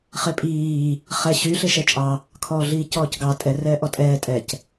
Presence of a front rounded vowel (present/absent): present